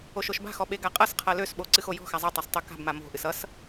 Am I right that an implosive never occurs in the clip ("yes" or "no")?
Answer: no